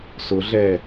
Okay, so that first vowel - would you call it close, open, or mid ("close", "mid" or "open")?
close